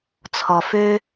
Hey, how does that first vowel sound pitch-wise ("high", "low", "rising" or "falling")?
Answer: low